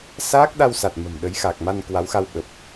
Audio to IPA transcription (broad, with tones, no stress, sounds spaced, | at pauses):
s aː˦˥ k̚ ɗ a˧ w s a˨˩ t̚ m ə̤˨˩ m ɗ ə˨˦ j x a˨˩ k̚ m a˧ n k w a˨˦ w x a˧ w ɓ ə˨˩ p̚